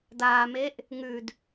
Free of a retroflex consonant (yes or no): yes